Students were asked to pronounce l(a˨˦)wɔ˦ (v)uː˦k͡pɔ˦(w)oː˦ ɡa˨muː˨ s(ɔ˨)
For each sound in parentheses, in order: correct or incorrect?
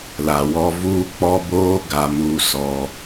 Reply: incorrect: a˨, correct, incorrect: b, correct

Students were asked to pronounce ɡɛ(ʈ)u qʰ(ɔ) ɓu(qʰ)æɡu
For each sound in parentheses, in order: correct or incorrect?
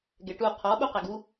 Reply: correct, correct, incorrect: q

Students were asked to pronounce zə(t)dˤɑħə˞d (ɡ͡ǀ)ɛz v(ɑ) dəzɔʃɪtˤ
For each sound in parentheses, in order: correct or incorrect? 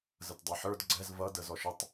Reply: correct, correct, incorrect: ʌ

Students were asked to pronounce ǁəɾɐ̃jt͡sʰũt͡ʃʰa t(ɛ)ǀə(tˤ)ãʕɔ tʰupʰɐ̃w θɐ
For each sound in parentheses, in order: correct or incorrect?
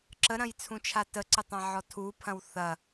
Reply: incorrect: ə, correct

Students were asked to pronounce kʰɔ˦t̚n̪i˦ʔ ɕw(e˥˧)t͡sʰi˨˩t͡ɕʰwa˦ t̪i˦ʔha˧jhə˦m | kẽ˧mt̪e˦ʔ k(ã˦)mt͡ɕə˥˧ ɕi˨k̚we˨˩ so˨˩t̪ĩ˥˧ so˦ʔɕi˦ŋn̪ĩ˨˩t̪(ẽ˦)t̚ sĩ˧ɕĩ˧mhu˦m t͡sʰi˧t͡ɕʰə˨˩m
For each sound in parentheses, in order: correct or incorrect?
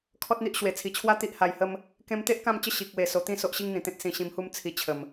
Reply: incorrect: e˨˩, incorrect: ã˥˧, correct

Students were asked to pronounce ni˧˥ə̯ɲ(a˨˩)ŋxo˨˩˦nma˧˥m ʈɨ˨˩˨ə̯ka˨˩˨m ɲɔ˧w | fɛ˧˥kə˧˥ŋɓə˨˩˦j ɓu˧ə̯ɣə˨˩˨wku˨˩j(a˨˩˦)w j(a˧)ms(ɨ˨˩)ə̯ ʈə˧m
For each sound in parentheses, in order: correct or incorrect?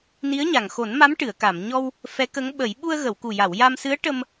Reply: correct, incorrect: a˨˩˨, correct, incorrect: ɨ˧˥

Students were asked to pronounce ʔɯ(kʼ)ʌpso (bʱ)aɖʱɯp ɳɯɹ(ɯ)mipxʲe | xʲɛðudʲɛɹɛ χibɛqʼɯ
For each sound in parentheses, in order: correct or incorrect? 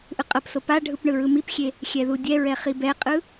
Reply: incorrect: qʼ, incorrect: p, correct

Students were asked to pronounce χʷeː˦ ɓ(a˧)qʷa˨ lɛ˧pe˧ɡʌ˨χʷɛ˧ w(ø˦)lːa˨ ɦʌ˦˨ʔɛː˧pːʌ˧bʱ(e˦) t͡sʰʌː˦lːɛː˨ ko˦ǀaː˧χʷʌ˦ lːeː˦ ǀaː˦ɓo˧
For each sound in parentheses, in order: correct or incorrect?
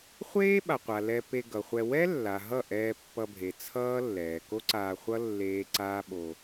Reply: incorrect: a˨, incorrect: ɛ˦, incorrect: e˨

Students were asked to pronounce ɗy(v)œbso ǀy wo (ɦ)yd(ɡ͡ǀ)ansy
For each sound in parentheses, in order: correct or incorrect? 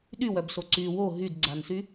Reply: incorrect: w, correct, correct

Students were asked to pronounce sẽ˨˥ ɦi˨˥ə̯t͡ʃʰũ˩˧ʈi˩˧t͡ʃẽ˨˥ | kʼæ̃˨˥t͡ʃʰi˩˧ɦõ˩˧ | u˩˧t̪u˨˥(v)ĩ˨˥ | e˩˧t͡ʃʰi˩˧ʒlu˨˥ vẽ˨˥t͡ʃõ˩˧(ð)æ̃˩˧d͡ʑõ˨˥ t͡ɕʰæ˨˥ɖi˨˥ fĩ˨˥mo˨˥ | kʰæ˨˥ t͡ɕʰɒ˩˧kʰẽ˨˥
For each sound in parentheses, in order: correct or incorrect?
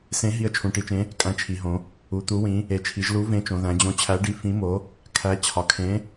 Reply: incorrect: w, correct

